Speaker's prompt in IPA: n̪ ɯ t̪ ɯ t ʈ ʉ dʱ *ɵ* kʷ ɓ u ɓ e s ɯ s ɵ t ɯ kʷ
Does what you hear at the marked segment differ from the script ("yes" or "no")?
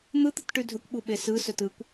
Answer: no